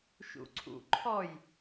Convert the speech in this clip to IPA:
ʃṵǀʰṵǃʰɔj

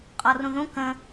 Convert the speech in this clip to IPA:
qʼɔrũðũ kə̃

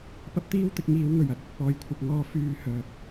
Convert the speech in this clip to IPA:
pɐ˥p̚t̪iː˥wt̪ɪ˨˥k̚ ŋiː˨˥wŋɵ˨˩ɥ ɐ˨t̚ɐ˨t̚pɔː˧jkʷʰɐ˧p̚ ŋɔː˧fyː˧hœː˨k̚

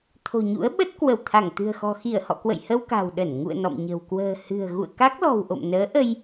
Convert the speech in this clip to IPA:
t̪ʰo̤˨˩ɲṵ˧˥ə̯ɓə˦˥t̚ kwə˧˩w t̪ʰa˧˩ŋt̪ɨ̤˨˩ə̯xɔ̤˨˩ xi˧˩ə̯hɔ̰˧˨kwə̰˧˨j hə˧wka̤˨˩w ɗə˧˩n ŋṵ˧˨ə̯ nɔ̰˧˨mɲə̤˨˩w kwə̤ː˨˩hɨ̤˨˩ə̯ ɣṵ˧˨ə̯ka˦˥k̚lɔ̤˨˩w ʔo̰˧˨mnəː˨˦ ʔə˧j

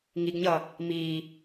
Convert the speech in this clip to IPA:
ŋiɡɲʌ | mi

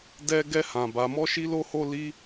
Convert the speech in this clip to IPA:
dɛ˦ɡɛ˦ hã˦ba˦ mɔ˦ʃi˦lo˦ho˦ li˦

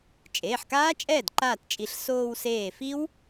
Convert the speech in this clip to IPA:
t͡ʃʼeː˩˧˩ħkaː˦˥t͡ʃʼɛː˥˩d ǃaː˥˩tt͡ʃʼi˧˩ɬ soː˧wseː˧˩ fi˦˥w

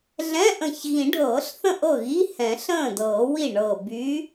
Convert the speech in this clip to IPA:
ɮɛ̃˧˥˧ʔə̃˧˩ç ɣĩ˨˩˦ɖʱɤː˨˩˦ɬθə̃˥˩ ʔɤ˥˩ɣi˧˥˧ hɛ̃˨˩˦ɬə̃ː˥˩dɤː˨˩˦wi˥˩ ɳɤ˧˩ by˨˥

